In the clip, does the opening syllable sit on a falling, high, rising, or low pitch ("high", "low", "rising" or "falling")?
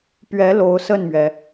rising